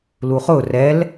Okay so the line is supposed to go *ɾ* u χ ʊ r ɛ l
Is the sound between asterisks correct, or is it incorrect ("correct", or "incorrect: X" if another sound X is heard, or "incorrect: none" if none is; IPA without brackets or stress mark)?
incorrect: l